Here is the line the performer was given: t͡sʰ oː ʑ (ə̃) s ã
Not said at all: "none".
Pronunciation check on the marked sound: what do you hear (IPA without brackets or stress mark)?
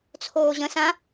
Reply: ə̃